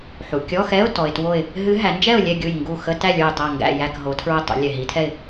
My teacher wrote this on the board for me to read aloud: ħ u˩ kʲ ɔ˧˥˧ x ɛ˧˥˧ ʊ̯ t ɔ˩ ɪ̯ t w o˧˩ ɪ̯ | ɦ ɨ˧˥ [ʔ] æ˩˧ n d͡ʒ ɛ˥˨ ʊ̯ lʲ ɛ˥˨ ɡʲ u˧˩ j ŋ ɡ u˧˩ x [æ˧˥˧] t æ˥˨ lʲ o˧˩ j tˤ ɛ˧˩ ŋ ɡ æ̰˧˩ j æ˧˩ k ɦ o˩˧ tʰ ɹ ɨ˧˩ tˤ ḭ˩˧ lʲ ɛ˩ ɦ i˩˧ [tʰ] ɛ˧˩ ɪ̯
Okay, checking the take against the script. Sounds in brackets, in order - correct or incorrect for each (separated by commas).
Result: incorrect, incorrect, correct